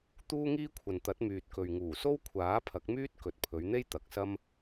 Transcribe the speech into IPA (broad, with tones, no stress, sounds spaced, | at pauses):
t̪ uː˥ ŋ iː˥ kʷʰ ɐ˨ n t̪ ɐ˨˥ t̚ m yː˨ t̚ k ɵ˨ ɥ ŋ uː˨˩ s o˥ w kʷʰ aː˨˥ pʰ ɐ˨˥ k̚ m yː˥ t̚ k ɵ˨ t̚ pʰ ɵ˨˧ ɥ n̪ e˥ j t̪ ɐ˨ k̚ s ɐ˥ m